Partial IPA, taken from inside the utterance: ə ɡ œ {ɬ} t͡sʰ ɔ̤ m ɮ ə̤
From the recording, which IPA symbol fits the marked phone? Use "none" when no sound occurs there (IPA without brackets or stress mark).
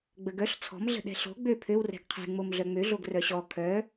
ɬ